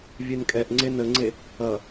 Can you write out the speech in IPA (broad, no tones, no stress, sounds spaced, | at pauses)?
vʲ e n kʼ ɛ ʔ ŋ͡ǀ e n ə ŋ͡ǀ e | ʌ